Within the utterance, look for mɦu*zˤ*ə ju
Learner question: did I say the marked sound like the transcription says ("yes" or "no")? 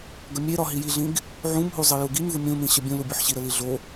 yes